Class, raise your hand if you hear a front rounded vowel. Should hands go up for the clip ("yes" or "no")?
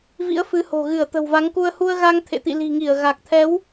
no